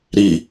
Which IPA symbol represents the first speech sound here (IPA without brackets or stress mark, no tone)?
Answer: ɾ